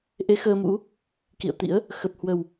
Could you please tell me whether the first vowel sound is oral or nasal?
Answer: oral